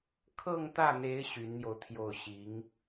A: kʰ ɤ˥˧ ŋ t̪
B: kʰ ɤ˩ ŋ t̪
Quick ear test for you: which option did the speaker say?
A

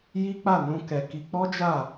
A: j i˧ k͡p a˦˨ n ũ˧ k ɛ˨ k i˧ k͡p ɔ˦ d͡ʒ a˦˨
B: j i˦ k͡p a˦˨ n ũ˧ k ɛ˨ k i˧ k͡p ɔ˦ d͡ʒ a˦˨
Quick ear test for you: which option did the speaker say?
B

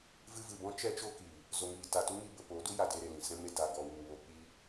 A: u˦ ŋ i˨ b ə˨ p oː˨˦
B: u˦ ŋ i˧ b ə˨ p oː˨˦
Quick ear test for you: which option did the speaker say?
B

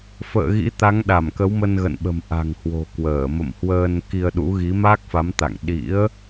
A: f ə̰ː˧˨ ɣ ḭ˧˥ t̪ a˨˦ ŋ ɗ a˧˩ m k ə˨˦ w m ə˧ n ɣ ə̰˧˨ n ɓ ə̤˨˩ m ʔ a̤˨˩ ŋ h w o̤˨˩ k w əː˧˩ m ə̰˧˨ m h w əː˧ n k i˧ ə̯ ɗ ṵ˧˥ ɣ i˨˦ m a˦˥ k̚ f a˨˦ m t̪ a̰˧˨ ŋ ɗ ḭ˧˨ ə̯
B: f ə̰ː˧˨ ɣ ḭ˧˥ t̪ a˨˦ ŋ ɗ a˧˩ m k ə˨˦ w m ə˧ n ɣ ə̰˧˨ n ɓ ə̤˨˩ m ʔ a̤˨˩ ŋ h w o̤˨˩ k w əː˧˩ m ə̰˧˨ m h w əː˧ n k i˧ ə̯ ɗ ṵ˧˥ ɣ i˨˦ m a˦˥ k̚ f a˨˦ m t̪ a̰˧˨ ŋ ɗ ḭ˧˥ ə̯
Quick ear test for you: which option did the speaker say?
B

